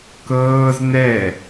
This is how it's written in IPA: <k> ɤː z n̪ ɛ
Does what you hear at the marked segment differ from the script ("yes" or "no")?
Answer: no